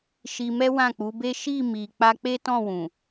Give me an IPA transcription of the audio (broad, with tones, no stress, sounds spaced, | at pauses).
ʃ i˧ m ɛ˦ w ã˦˨ k͡p u˨˦ b e˦ ʃ i˦˨ m i˨ k͡p a˧ k͡p e˦ t ɔ̃˦˨ w ũ˨